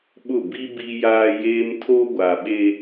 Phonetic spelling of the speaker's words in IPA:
ɓʊ˦˨ bi˦ bi˦jaː˦jeː˦m tʰo˦ɡʷa˨ɓe˦

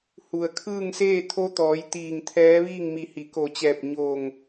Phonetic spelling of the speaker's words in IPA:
hu˩ə̯kʰɯː˥˨ŋ seː˥˨ t̪ʰo˧˥t̪ɔː˩˧j t̪iː˧˩ŋt̪ʰɛː˧˥ʋiː˥˨ŋ mi˧˩hi˩˧ko˧˩t͡ɕɛː˧˩p̚ ɲo˧˩ŋ

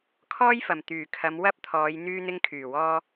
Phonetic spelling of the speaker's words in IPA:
kʰɔː˥jfɐ˨˩m t̪yː˨˩kʰɐ˨˧m wɐ˥p̚t̪ʰɔː˨˧j n̪yː˧n̪ɪ˧ŋkʰyː˨˩wɔː˧

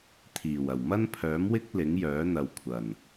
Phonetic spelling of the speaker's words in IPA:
t̪ʰiː˨˩w ɐ˨˩w mɐ˥npʰœː˨˥mwɪ˥k̚ lɪ˨˥ŋjœː˨˥n̪ɐ˨w kʷʰɐ˨˩n

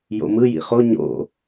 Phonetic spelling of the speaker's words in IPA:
jo̰mɯ jḭχo ɲo̰

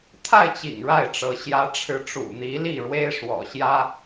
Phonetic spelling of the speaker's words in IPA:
t̪ʰa˥˩ɪ̯t͡ɕḭ˨˩ŋ ɻa˥˩ɪ̯ʈ͡ʂɤ˧˥ ɕjä˧˥ʈ͡ʂʰɻ̩˧˥ ʈ͡ʂṵ˨˩ n̪i˧˥li˥˩ɻwe˥ɪ̯ ʂwɔ̰˨˩ɕjä˥

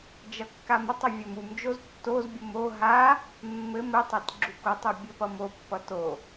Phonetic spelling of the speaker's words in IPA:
d͡ʒʌkːamʌtˤʌ vʲʌmumd͡ʒoz tːozbʲom o ɦa | mːɘm ɘtˤat ɡ͡ǁukotˤo bʲɘpʌmopːʌ to

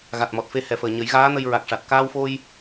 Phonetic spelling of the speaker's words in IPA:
ɣa˨˩t̚mɔ˨˩t̚fe˧ hɛ˨˩fəː˨˩ ɲə˨˩˦jɣaː˧˥nə˧j ɹa˨˩k̚ʂa˨˩t̚ kaː˧wfo˧j

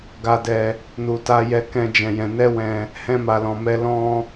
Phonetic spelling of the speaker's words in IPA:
ɡa˧dɛ˧ | nu˨ta˧jɛ˧ kɛ̃˦d͡ʒɛ̃˧jɛ̃˧ nɛ˦ wɛ̃˧ | hɛ̃˦ma˧lɔ̃˧mɛ˦ lɔ̃˦

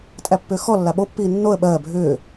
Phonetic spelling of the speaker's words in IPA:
tʼæpːʏːxɔ lːaɓopːiː nːoə̯ ɓɜː bʱʏː

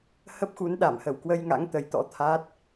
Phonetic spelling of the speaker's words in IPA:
hə˦˥p̚xu˨˦nɗa˧˩m hə˧˩wkwə˧jŋa̰˧˥ŋ t̪ə˨˦jt̪ɔ̰˧˥t̪ʰaː˦˥t̚

